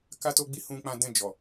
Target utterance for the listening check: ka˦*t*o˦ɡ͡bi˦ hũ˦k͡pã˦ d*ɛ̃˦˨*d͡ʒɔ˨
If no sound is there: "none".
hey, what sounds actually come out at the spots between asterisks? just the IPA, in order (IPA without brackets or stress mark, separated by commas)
t, ɛ̃˦˨